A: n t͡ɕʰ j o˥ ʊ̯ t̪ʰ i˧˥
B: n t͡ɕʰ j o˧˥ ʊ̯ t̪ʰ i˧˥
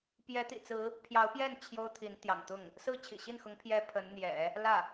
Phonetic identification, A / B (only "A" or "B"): A